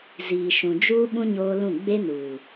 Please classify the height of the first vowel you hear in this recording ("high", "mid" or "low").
high